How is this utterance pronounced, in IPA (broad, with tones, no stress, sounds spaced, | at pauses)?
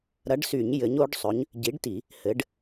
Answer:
ɾ ɐ˨˥ ɖ s y˧˩˧ ɲ j ɘ˨˥ ɲ o˨˥ ɖ sˤ ɵ˨˥ ɲ | ɟ i˨˥ ɖ t i˧˩˧ | h ɘ˨˥ ɖ